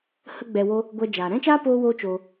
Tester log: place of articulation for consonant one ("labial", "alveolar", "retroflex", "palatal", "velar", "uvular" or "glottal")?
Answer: glottal